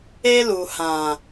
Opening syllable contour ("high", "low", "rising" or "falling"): high